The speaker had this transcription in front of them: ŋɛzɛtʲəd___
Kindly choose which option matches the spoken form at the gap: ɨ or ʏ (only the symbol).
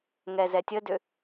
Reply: ʏ